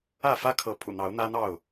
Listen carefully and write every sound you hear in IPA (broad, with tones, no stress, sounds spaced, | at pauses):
ä˥˨ f ä˦ kʰ ɤ˨˦ pʰ ṵ˨˩ n̪ ɑ˨˦ ʊ̯ n̪ ä˦ n̪ ɑ˥˨ ʊ̯